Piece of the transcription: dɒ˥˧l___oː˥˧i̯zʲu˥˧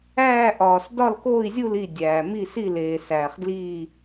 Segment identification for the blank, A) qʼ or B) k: B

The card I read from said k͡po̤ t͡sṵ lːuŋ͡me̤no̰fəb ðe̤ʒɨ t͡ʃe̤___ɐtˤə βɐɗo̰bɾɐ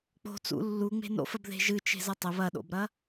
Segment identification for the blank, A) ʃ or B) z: B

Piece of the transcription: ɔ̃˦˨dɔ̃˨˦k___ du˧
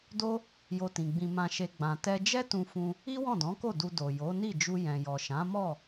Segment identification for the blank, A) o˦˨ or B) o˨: A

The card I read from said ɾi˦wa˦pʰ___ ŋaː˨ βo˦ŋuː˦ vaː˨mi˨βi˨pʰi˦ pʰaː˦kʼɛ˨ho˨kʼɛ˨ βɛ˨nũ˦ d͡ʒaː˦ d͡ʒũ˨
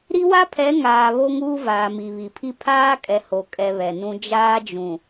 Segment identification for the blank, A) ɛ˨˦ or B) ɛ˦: A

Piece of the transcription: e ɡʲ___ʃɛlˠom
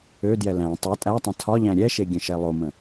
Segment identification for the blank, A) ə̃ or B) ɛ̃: A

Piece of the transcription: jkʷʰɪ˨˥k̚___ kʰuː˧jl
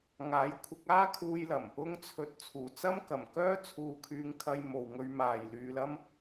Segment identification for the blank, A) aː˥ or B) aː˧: A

